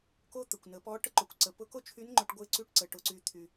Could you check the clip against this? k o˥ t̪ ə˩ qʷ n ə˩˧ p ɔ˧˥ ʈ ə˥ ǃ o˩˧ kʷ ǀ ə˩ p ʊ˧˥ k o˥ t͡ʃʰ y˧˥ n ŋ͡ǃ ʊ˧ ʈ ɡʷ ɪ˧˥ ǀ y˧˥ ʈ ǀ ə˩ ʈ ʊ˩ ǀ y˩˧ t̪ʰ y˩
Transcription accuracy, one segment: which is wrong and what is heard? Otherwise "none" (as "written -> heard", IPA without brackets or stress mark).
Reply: qʷ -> kʷ